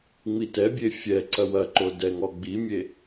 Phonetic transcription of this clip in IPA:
ŋ͡mitɛbʲe fʲɛ ǀɐwɐǃo dɛŋɔ ɡ͡bimʲe

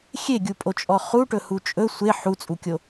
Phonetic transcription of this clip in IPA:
xʲeɡʲupʼot͡ʃʼɔ χuʈɵhu t͡ʃʼɵ sʷe ħut͡sʼukʲo

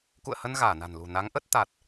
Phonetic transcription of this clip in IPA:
kṵ˧˨ə̯hə˧n ɣaː˧˩na̤˨˩nlṳ˨˩ na˨˦ŋʔə˦˥t̚ t̪a˨˩t̚

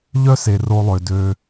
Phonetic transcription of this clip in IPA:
ʎœ˦ se˨ro˧lˠø˨dø˧

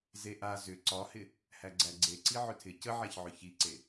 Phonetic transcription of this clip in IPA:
zeʔa zʏ ǀɒhɪ | hæɡ͡ǀæɡ͡ǀeǀi ʕʏtʰɪ cəʕæçʕʏ çiǀe

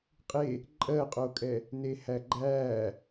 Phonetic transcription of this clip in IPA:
qʼe | ǃʼɜqʼokʼɛ | nehæɡ͡ǃæː

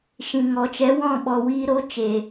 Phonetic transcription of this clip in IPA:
ʃĩ˨ŋɔ˨ t͡ʃɛ˨˦wɔ̃˦˨ɓɔ˨wiː˧ ɾo˨˦t͡ʃe˨

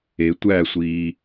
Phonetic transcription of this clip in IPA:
e tʷæsʷiː

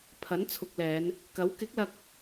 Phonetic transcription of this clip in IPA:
pʰɐ˨˥nt͡sʰʊ˨k̚lɛː˨˧n | kɐ˨˥w kɪ˨˥k̚lɐ˧k̚

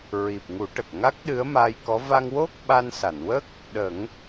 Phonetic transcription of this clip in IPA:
ɹi˨˩p̚ŋu˨˩˦ ʈə˨˩k̚ŋa˦˥k̚ɗɨ˧˥ə̯ maː˧jkɔ˧˥ va˧ŋwo˦˥k̚ ɓa˧nsa˨˩˨nwə˦˥k̚ | ɗə˨˩˦ŋ

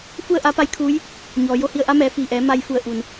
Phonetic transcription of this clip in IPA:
fu˥˨ə̯ʔa˧˥ pa˧˥jkʰuː˧˥j | ɲɔː˩jo˧hi˧ə̯ʔa˧˥ mɛː˩˧fiː˧˩ʔɛː˩˧ ma˧jfu˧˩ə̯ʔu˩n

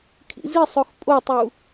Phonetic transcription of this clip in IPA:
kʰḭzisˤox pʼotˤu

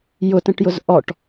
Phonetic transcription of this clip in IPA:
jʊtə̃ʈjʊz ʔɔʈ

